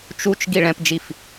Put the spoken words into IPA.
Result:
t͡ʃ u t͡ʃ ɡ i ɭ ɛ̃ p d͡ʒ i f

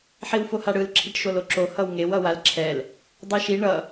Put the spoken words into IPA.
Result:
ħ i w f o h a ɽ ɯ l ǁʰ i ʈ ʃ o l o ǁ o h ʌ w ŋ e w ʌ w a l ǁʰ ɛ l | dˤ i ʃ i ɳ ʌ

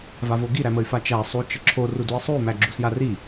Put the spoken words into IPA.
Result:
v a v o ɡ i ɾ æ m ə y̯ f a t͡ʃ æ sˤ u t͡ʃ ə ǁʰ o r u d u i̯ sˤ u y̯ m æ ɡ͡ǁ u s j a r i

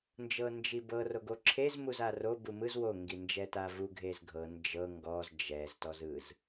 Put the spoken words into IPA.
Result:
n d͡ʒ ɤ n d͡ʒ i b ɤ r o ɡ o ǁʰ e z m u z a r o b u m ɯ z w o ŋ ɡ i n d͡ʒ ɛ t a v u ɡʱ e z ɡʱ ɤ n d͡ʒ ɤ ŋ ɡ ɔ z d͡ʒ ɛ z t ɔ z ɯ z

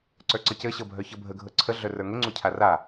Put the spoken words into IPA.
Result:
ǀ ə˞ ǀ ɤ c ɘ ɕ ɤ bʱ œ ç ɤ bʱ ə ɡʱ ɤ ǀʰ ə ɮ œ r ə˞ ŋ ɘ ŋ͡ǀ u cʰ a r a

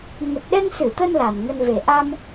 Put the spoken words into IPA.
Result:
ŋ ə˨˩ t̚ ɗ ɛ˧ ŋ s ɨ˧˩ t̪ ə˧ n l a˨˩ n ŋ ə˧ n v e˨˩ ʔ a˧ m

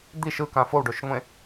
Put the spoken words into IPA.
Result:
d̪ i ʃ ɯ k ã f o w ɖ o ʃ ŋʷ ẽ

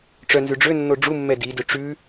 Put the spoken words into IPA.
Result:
ʈ͡ʂ œ n z ʉ ɖ͡ʐ ø nː o ɖ͡ʐ u mː ɛ d i d ø ʈ͡ʂ ʉ

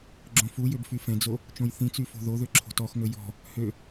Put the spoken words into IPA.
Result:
ɡ͡ǁ õ f u j ø b f y f ɛ̃ d͡z o | t͡ʃ õ j θ ĩ t͡s y f o̤ ð o ð ø ǁʰ o̤ t ɔ x ŋ ɵ j ɔ̤ | h ø

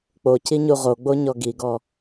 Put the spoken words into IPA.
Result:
k͡p o c i ɲ u ʁ o ɡ͡b o ɲ ɔ ɡ i ɡ ɔ

